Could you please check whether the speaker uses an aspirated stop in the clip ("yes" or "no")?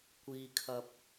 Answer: yes